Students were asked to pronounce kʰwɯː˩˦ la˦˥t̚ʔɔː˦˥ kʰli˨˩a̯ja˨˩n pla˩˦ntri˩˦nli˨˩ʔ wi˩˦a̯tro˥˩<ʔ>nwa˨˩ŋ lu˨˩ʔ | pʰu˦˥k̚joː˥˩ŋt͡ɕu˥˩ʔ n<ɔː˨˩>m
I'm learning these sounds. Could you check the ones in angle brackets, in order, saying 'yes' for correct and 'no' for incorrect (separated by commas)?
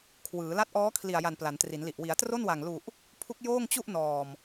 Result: no, yes